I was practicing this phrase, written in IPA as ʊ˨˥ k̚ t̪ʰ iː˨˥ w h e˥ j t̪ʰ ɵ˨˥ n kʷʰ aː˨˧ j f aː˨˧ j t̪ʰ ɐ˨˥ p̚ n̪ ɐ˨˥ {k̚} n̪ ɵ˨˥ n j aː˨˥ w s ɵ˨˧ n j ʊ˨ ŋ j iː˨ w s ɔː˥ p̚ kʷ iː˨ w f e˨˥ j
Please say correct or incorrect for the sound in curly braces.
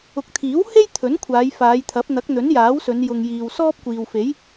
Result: correct